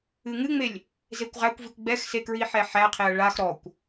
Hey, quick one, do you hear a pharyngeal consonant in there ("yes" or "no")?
yes